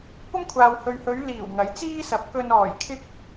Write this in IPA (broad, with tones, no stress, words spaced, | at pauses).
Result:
kʷɐ˥mkʷʰaː˨whɵ˨ɥhɵ˨˧ɥ liː˨˩wŋɐ˨˥j t͡siː˥sɐ˨˥p̚kɵ˧n ɔː˨˩jkʰɪ˥k̚